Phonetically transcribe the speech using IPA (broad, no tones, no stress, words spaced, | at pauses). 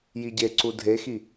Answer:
jiɟeǀu dʱexi